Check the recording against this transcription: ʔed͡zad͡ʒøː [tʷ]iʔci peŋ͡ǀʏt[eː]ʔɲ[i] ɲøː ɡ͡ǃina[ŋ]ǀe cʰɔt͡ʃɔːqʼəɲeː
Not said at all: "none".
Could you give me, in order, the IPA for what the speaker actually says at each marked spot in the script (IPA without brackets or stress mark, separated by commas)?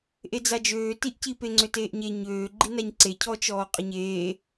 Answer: t, eː, e, ɲ